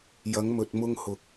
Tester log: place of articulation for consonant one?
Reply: palatal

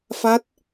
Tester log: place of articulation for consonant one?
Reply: labial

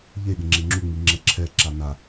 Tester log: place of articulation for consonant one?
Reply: palatal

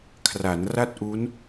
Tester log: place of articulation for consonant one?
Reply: velar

